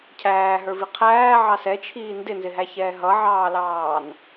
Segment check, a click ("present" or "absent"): absent